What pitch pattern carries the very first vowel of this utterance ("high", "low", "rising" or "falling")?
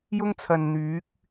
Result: high